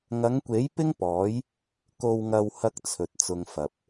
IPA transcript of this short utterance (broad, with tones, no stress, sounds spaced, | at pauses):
ŋ ɐ˨˧ ŋ kʷ e˨˥ j p ɪ˥ ŋ p ɔː˨˥ j | k o˨ w ŋ ɐ˨ w h ɐ˥ k̚ t͡sʰ ɵ˨ t̚ t͡s ʊ˧ ŋ f ɐ˨ p̚